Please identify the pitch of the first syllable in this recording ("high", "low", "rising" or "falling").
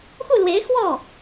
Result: falling